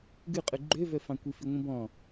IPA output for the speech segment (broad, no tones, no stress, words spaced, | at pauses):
ɡʉqʼʉ ɡ͡ǃøvœfɑ̃ kʷifiŋʷĩbɔ̃